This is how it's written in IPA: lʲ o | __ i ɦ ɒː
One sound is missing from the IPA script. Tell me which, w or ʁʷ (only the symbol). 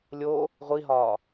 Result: ʁʷ